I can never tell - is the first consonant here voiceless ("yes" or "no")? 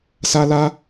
yes